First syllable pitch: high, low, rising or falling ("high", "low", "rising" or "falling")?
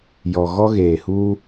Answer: low